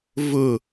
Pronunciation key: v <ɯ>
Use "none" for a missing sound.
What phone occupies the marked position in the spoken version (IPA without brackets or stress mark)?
ʊ